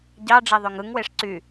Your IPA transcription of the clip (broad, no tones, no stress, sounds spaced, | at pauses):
ɟ ɑ ɖ͡ʐ e ðˤ ø ŋ ɯ ŋ w e ʂ ǀ y